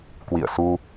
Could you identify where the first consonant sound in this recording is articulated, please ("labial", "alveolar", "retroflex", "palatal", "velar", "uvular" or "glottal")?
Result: velar